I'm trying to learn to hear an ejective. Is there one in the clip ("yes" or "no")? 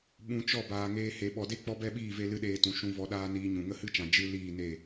no